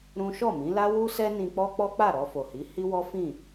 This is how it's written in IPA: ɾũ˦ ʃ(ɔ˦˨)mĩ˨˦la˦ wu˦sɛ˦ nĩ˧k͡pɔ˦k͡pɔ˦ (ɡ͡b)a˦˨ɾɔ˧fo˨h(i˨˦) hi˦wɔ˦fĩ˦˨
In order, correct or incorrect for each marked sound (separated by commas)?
correct, incorrect, correct